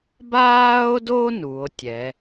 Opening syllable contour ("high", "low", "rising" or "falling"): high